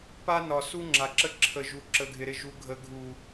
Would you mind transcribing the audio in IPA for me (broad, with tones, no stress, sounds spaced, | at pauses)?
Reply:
p a˦ n ɒ˨ s u˦ ŋ͡ǁ a˨ ǁ ə˦ ǁʰ ə˨ ʒ u˨ ǁ ə˨ ɡʱ ɪ˨ ɾ ɪ˦˨ ʒ u˨ ɡʱ ə˨ ɡʱ u˨